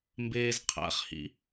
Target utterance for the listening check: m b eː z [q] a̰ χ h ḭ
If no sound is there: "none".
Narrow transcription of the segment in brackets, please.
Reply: qʰ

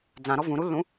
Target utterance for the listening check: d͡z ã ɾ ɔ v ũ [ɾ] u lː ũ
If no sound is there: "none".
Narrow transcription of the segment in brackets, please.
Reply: ɾ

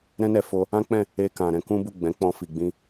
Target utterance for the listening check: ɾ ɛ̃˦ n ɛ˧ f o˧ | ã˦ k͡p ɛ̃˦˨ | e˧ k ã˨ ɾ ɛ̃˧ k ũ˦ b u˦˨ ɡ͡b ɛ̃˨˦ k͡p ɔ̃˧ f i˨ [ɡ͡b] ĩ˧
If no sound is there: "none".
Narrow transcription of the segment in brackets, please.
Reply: ɡ͡b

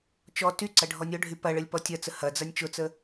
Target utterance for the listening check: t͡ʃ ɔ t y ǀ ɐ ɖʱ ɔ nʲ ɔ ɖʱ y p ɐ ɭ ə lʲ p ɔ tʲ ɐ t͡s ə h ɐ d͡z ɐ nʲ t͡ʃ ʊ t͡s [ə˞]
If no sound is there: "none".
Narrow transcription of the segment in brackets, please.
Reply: ə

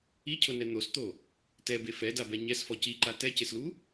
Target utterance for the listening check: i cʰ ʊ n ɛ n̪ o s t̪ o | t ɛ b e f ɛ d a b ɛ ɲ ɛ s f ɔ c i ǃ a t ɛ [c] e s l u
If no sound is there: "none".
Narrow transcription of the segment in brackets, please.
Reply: c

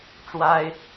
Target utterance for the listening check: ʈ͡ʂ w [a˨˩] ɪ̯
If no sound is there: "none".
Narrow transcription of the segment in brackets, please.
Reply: a˦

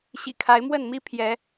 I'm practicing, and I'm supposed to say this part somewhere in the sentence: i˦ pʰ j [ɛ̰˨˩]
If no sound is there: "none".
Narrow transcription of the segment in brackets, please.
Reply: ɛ˨˦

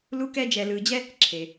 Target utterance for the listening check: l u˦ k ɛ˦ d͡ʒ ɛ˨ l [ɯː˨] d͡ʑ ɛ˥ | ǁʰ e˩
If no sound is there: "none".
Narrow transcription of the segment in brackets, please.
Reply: ɯː˨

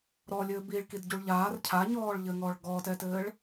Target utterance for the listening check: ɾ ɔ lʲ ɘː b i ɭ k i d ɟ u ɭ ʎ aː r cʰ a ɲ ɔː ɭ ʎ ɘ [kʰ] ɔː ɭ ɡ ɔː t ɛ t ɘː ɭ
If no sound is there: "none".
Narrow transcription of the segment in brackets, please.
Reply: ŋ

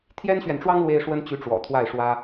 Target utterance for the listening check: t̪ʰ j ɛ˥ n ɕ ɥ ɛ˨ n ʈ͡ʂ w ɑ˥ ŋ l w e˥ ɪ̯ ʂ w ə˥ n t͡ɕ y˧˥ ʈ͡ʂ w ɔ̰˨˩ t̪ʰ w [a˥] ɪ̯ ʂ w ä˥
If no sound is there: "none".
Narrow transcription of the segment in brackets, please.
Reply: a˥˩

